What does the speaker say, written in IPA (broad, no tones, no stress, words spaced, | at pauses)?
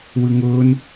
wɯŋʊːn